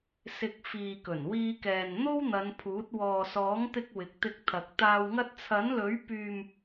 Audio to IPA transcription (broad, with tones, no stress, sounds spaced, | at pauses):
s ɪ˨ k̚ f iː˨ k ɵ˨˩ n w iː˧ k ɛː˨ n n̪ o˥ w n̪ ɐ˨˧ n pʰ uː˨˥ t̚ w ɔː˨ s ɔː˨˥ ŋ t̪ ɪ˧ k̚ w ɪ˨˥ k̚ t̪ ɪ˧ k̚ t̪ʰ ɐ˨ k̚ t̪ aː˨ w ŋ ɐ˧ t̚ t͡sʰ ɐ˨˥ n l ɵ˨˥ ɥ p yː˨ m